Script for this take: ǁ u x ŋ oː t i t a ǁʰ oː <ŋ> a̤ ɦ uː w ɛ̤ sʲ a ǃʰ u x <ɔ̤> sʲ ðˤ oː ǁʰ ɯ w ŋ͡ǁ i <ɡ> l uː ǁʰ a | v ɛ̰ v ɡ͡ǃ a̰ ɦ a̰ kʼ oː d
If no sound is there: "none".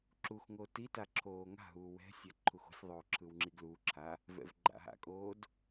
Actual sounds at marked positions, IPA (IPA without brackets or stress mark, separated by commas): ŋ, o̤, ɡ